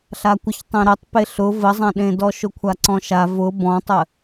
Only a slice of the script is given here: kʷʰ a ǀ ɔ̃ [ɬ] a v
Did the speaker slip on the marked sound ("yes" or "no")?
yes